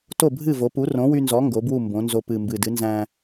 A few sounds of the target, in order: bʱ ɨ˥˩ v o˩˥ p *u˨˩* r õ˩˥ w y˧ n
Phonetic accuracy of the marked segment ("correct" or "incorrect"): incorrect